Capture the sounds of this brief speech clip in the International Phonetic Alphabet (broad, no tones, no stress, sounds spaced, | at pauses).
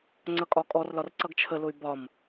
ŋ͡ǀ ʌ kʼ ɒ kʼ ɔ r l ɒ r ǀ ʌ ɡ t͡ʃʰ ə l ʊ y̯ b ɒ m